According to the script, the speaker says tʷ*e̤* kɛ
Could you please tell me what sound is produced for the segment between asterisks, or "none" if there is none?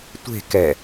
e̤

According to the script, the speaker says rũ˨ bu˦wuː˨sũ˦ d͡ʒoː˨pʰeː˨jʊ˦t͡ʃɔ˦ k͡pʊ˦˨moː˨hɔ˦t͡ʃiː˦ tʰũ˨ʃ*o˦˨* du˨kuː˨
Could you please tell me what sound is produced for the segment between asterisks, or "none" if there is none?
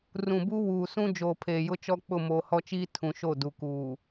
o˦˨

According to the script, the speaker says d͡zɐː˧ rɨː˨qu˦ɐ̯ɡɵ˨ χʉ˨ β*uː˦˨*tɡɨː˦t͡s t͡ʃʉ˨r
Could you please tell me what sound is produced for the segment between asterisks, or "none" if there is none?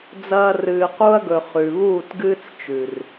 uː˦˨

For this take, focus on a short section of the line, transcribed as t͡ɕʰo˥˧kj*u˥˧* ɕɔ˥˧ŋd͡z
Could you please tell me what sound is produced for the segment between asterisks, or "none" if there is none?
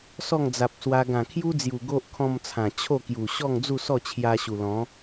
u˨˩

